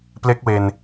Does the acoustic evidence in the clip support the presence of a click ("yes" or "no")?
no